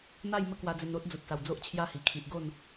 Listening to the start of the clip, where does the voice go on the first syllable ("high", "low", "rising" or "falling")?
falling